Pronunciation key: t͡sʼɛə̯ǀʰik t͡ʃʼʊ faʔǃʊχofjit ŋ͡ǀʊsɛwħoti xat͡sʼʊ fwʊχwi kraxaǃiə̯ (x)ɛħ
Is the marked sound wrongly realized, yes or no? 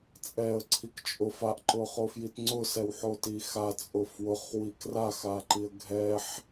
yes